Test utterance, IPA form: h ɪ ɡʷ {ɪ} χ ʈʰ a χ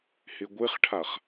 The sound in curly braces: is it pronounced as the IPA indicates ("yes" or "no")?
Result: yes